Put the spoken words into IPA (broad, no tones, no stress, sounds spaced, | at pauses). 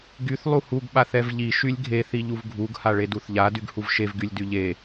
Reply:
ɡ y θ lˠ u h u ɡ ɓ a θ ɛ v ʎ i ʃ y lʲ ɡʱ e θ i ʎ u v ɡʱ u ɡ h a ɭ e d u θ ʎ a d y ɡ h u v ʃ e v ɡ y lʲ d y ʎ e